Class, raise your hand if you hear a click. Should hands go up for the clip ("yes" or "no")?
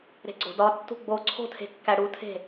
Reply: yes